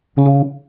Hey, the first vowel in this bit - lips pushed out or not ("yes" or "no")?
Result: yes